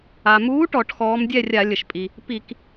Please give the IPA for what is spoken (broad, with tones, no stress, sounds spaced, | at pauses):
a˩ m uː˨˥ ʈ ɔ˧˩˧ ʈ x ɔː˨˥ m dʲ ɛ˥˨ rʲ a˧˩˧ lʲ ə˩ ʃ pʼ i˩ | p i˧˩˧ k